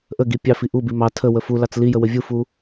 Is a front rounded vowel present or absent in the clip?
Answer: absent